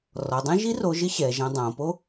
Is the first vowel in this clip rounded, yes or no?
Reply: yes